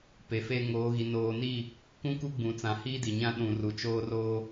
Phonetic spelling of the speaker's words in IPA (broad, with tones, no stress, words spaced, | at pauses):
pe˨fe˦ ŋoː˨˦ɣi˨ noː˨ni˦˨ | kũ˦ku˦ɡ͡bũ˨t͡sã˨ hiː˦di˨ɲã˦ ɗũ˨ru˨t͡ʃoː˦roː˦